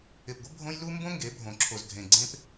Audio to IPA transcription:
ɪ˨ p ɡʷ ɪ˦ bʱ õ˦ j l u˦ m b õ˦ ŋ ɡ e˨˦ bʱ õ˨ ǁʰ o˨ z dʱ ẽ˨ ɡ͡ǀ ẽ˦ p

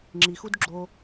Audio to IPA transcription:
ŋ͡ǁ i x u d ɡ͡ǁ o

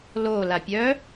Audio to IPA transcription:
l o l a pʲ œ

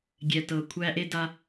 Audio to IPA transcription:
ɡʲ ɛ˨ t ɤ˨ kʷʰ æ˦ ʔ e˦ d a˦

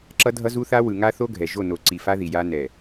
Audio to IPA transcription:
ǁ ʌ˦ dʱ ʌ˦ z u˦ θ a˦ w ɯ˨ ŋ a˦ θ o˦ ɡʱ ɛ˨ ʒ o˦˨ n o˨ ǀ i˨ f a˦ ð i˨ j a˦ n ɛ˨

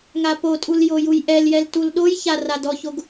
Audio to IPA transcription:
ŋ a p o tʼ u l j o j u j ʔ ɛ l j ɛ l t u l ɗ o j ç a r a d ɔ ç o ɡ

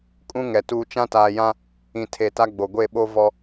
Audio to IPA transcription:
kʼ ũ˦ ŋ ɛ˨ t uː˦ t͡ʃ ã˦ t aː˨ j ã˦ | ĩ˨ tʰ e˨ t a˦ ɡ͡b o˨ ɡʷ e˦˨ ɓ o˦ v ɔ˦

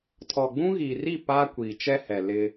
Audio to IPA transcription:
tʰ ɔ˨ ɡ͡b ũ˦ ɣ iː˨ r i˦˨ p aː˦ kʷ iː˨ t͡ʃ ɛ˦ h ɛ˨ l ɪ˦

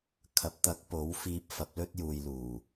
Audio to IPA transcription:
kʰ ɐ˨˥ p̚ t̪ ɐ˨˥ k̚ p o˨˥ w f iː˧ p̚ f ɐ˨˥ p̚ l ɵ˥ t̚ j uː˨ j l uː˨˩

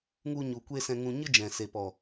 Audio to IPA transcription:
ŋ u˧ ɲ u˨ kʷ e˧ s ɛ̃˧ ŋ ũ˧ ɲ ɨ˦ d͡ʒ ɛ̃˨ s e˨ p ɔ˨

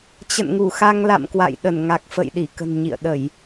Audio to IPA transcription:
t͡ɕ ə̰˧˨ n ŋ u˧˩ x a˧ ŋ l a̰˧˨ m k w a̰˧˨ j ɗ ə˧˩ n ŋ a˨˩ k̚ f ə̰˧˨ j ɗ i˧˩ k ə̤˨˩ n ɲ ḭ˧˨ ə̯ ɗ ə˧˩˨ j

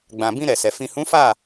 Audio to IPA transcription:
ɡ͡b ã˨ b ĩ˧ ɾ ɛ˨ s ɛ˨ f ĩ˨ h ũ˨˦ f a˦˨

